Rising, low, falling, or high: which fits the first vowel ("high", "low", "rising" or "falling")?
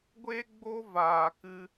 high